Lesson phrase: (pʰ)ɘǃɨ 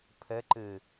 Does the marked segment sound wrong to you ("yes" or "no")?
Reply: no